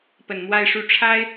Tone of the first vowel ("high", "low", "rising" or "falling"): low